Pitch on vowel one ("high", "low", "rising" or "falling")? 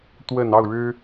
low